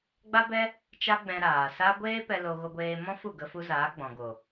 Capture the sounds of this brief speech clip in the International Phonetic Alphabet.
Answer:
ɡ͡ba˦bɛ˦ | t͡ʃa˦ɡ͡bɛ̃˧ɾaː˨ sa˦ ɡʷeː˦ pɛ˧lo˧ ɣo˧ɡʷeː˧mɔ̃˦fu˦˨ ɡə˧fu˧zaː˨˦ɡ͡bɔ̃˨ ɡo˨

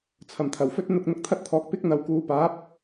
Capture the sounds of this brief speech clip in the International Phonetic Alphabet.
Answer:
t͡sʰɐ˨˩mt̪ʰɐ˨˩wfɵ˥t̚ n̪ʊ˧k̚ n̪ʊ˧k̚t̪ʰɐ˥t̚t̪ʰɔː˨k̚ pɪ˥k̚n̪ɐ˨w kuː˨paː˨˥p̚

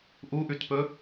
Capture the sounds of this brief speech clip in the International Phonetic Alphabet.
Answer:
ʔuʔʉtpɵ

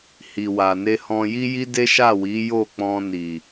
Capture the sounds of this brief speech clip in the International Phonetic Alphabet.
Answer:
hi˨wa˨ ne˧hɔ̃˧ ji˦ji˦de˦ ʃa˦˨wi˨˦ jo˦˨k͡pɔ̃˧ni˨

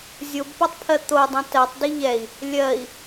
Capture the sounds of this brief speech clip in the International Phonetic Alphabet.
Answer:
zʲobpotˤpʰɜ t̪odˤõ tɜtˤdi ʎɛi̯ | lʲɜi̯

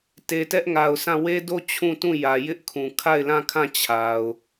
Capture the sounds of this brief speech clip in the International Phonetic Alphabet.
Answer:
te˨tɛ˦ʔŋa˨ʊ̯sã˦˨ we˦do˦˨ t͡ɕʰũ˦˨tũ˦˨ jä˨ jɪ˦ʔkʰũ˨ kʰa˦˨ɪ̯lã˦˨kʰã˦˨ t͡ɕʰa˨ʊ̯

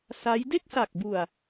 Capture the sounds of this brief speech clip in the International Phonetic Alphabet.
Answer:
sa˦˥j de˥˩k̚sa˨˩k̚bu˨˩a̯

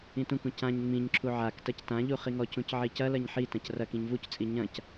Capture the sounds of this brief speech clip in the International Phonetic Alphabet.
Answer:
ĩtũkũ cãɲ ŋ͡mĩɲǁʰu ʕak tɐctãʎu χiŋɔcũc ʕicɐlɐɲ ħitɐ̃c rɐk ĩɲvuct͡sʼi ɲɐ̃c

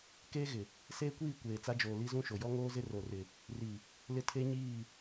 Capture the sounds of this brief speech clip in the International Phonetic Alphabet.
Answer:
keː˦ɣɪ˨ | seː˦kʷiː˦˨ kʷeː˨t͡sa˦d͡ʒoː˨ li˦zũ˦ʃo˨ jɔ˦ŋoː˦zɪ˦ ro˨rɪ˨ | ri˨ | lɪ˦tʰe˦ ɲiː˦˨

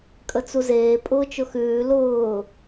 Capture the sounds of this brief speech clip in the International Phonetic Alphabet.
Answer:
kʼət͡suzeː pʼʊːt͡ʃʊxʉː lʊː

